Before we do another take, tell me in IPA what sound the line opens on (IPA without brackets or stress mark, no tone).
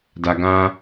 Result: d